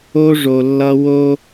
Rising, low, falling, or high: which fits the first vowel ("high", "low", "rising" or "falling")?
high